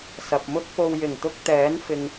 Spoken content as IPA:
s ɐ˨ p̚ m ʊ˥ k̚ p o˧ w j ɪ˨˩ ŋ t̪ ʊ˧ k̚ t̪ ɛː˨˥ n f ɪ˨ ŋ

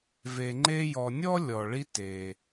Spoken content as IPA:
v e˨ ŋ͡ǃ e˦ j ɔ˨ nʲ ɔ˥ lʲ ɔ˩ ɭ i˦ t e˩

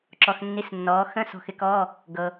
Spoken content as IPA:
ǁ ɔ˧ x nː i˧˥˧ s nː ɔː˨˥ x ə̃˧˥˧ s ɔ̤˧ x ɪ˨˥ k ɔː˧˥˧ | ɡ ɤ˧

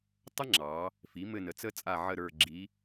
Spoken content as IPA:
tˤ ə˥ ŋ͡ǁ ɑ˩˧ | f i˩˥ m ɘ˦˨ n ə˩˥ t͡s ə˥ t͡sʼ a˦˨ ʕ ə˦˨ ɾ ə˞˦˨ ɡ͡ǁ i˧˥

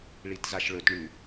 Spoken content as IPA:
ɭ i t z a ʃ ɭ ɵ t ɳ ʉ

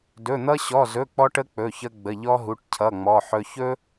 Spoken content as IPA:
d ɵ˧˥˧ n̪ ʌ˥ ɕ ɔ˧˥˧ z ɵ˧˥˧ k͡p ɔ˥ ʈ ə˥ k͡p ɵ˧˥˧ ç ə˥ ɡ͡b ə˧˥˧ ʎ ɔ˥ ɦ u˧˥˧ ʈ cʰ ʌ˧˥˧ ŋ͡m ɔ˧˥˧ ħ ɵ˥ ç ɵ˥

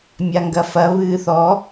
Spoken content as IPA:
mʲ a ŋ ɡ ɐ f ɐ β ɨː θ ɔ

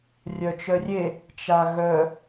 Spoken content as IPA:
rʲ œ t͡ʃ œ rʲ e | t͡ʃ a ɣ œ

